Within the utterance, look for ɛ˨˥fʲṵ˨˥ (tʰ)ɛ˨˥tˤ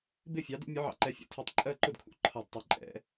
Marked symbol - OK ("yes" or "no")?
yes